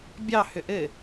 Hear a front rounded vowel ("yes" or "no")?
yes